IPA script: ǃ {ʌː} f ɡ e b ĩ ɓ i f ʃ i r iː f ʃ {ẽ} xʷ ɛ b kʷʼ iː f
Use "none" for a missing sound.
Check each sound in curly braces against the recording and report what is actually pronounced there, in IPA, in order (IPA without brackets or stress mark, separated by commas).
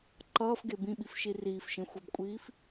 ʌː, ẽ